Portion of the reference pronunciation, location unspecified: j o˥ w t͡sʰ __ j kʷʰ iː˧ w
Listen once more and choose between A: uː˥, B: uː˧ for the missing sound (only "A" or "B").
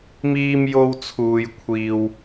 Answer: B